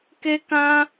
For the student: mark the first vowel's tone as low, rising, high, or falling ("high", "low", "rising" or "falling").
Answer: high